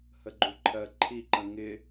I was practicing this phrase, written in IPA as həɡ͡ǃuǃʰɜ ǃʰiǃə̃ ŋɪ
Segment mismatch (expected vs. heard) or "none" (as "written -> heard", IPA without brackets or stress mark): none